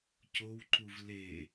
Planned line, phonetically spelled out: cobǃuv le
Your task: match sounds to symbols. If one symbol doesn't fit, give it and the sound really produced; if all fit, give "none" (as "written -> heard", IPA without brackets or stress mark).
b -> w